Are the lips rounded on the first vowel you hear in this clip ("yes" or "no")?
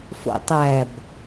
yes